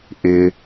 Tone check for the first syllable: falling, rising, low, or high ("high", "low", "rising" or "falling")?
high